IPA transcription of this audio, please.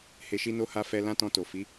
he˧ʃi˦no˦ ha˦ fɛ˧ lã˦tɔ̃˧to˨ fi˨˦

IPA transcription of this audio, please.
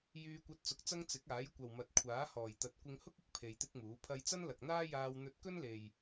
jyː˧kʷɐ˧t̚ t͡sʊ˧k̚t͡sɐ˥ŋ t͡sɪ˨˥k̚aː˨˥jkʷɐ˨wmɐ˨t̚ kʷʰaː˨˥hɔː˨˩jt̪ɐ˨˥t̚ kʷɪ˧ŋhʊ˥k̚ɪ˧k̚ pʰe˧jt̪ɪ˥k̚muː˨˥pʰɐ˥j t͡sɐ˥nlɐ˨k̚n̪aː˥jaː˧w n̪ɵ˧t̚kɵ˥nle˨j

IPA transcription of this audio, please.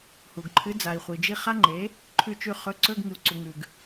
hu˨ɡǃʰɨ˨˥ d͡za˨i̯χʷi˨d͡ʒi˦˨ χa˦˥ŋ͡ǃe˨˥ | ǃʰʉ˦˨t͡ʃʉ˦˨ χɵ˨˥ ǀɵ˧˥˧ɡ ŋɨ˨u̯ǀu˨ŋʉ˨ɡ

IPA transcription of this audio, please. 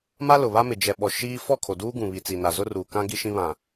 ma˦lʊ˨βa˦mɪ˨ d͡ʒɛ˨ɓɔ˨ ʃiː˦ fɔ˦˨kʰo˨ duː˦ɡũ˨βi˨ t͡si˨na˨ zʊ˦ruː˨ kã˦ ɡi˦ʃĩ˦ βã˨

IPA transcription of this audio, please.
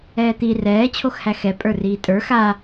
ɛːt̪i rɛː t͡ɕʰoxhæxɛ pʼə˞riːtʼə˞ xa

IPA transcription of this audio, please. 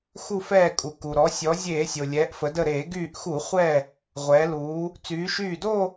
xu˧˩fɛː˧˩kʼu˩ ku˩ɾɔ˩˧ sʲɔ˩˧ zʲeː˧˩˧sʲo˩ lʲɛː˩˧ʔfə˩˧də˧˩ɾeː˧˩˧ ɡyː˧˩ʔxu˧˩˧ χʷɛ˧˩ | ʁʷɛː˩˧luː˩˧ | t͡syː˩˧ʃyː˧˩do˥˧

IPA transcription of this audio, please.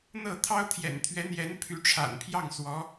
n̪ɤ˥˩ t̪ʰɑ˥ʊ̯t̪ʰjɛ̰˨˩nt̪ʰɥɛ˧˥n̪jɛ˧˥n pʰy˧˥ʈ͡ʂʰa̰˨˩npʰjɑ˥˩ŋ swɔ˧˥

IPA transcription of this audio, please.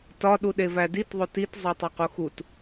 tɒ ɗuɗevædit ðˤotit zˤotˤoquxut

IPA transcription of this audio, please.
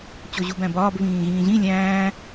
t͡ɕoʑubæ̃bɒːb βĩːɣĩːʑĩ lʲæ̃ː

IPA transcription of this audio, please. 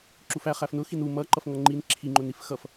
ǁufæ χæfnʊ xinu mʌ ǃʌfŋʌŋ͡ǃin ǁʰi ŋ͡ǃʊnifxʌf

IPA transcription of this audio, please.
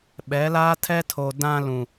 ɓɛ˨˦laː˦ tʰɛ˦tʰo˨ dã˦lũ˨

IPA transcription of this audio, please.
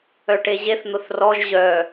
œʈeʑeθ n̪ʊθrɔʒ ʑœ

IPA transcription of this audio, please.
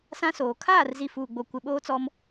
sã˦soː˨ kʰaː˦˨rzi˨ fuː˨ɡ͡bo˨ kʷɪ˨ ɓoː˦t͡sɔ˦m

